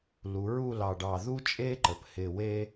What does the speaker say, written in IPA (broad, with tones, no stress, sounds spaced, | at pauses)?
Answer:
l u˩˧ ɹ u˥˧ l ɑ˧˩ ɖ ɑ˧˩ ð u˥ t͡ʃʼ e˥ ǃ ə˩˧ p h ɪ˧˩ w e˥